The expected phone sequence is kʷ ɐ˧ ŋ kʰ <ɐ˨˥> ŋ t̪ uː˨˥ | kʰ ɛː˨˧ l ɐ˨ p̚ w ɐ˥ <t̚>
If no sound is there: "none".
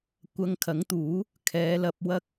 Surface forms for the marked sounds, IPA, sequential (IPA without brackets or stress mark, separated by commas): ɐ˨˥, k̚